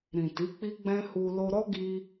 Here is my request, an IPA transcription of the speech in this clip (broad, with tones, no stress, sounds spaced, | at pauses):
ɾ ĩ˨ t i˨˦ k͡p i˦ ɡ͡b ɛ̃˦ h u˧ l o˧ ɾ ɔ˦ ɡ i˧